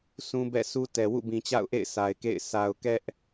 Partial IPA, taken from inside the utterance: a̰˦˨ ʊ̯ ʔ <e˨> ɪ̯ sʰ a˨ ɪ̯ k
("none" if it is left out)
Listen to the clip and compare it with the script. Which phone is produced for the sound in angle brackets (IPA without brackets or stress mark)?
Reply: ḛ˦˨